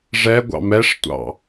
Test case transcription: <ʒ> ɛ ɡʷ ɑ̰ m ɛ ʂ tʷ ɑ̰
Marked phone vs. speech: incorrect: ʐ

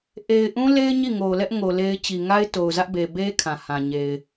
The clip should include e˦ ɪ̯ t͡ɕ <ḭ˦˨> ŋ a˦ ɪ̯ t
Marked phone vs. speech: incorrect: i˨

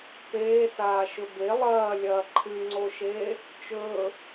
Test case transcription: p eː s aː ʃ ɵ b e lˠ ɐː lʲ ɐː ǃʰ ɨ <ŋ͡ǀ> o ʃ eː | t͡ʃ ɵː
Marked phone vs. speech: correct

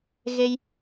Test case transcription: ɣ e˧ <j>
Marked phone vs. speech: correct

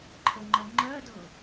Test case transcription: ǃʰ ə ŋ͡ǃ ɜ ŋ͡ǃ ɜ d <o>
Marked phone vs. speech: incorrect: ɤ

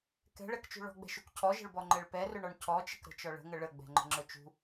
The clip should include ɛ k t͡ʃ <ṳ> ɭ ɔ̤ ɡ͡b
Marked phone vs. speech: correct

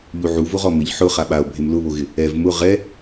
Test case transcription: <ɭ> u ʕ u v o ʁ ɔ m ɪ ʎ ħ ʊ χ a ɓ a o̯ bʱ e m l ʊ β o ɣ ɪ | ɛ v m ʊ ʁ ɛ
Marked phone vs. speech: incorrect: ʎ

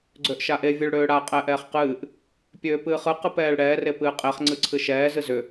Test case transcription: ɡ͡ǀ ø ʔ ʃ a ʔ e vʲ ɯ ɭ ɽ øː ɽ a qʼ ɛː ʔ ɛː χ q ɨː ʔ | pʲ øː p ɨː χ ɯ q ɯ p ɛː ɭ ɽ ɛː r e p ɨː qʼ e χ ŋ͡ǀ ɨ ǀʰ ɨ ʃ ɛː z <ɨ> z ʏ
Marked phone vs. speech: correct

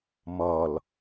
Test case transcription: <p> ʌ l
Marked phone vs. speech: incorrect: m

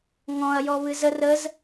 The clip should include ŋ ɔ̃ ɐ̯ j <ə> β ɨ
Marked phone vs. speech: incorrect: ɔ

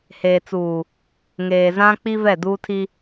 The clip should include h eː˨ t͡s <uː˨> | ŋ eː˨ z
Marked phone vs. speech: correct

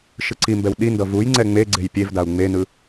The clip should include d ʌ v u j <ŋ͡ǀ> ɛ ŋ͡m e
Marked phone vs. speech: correct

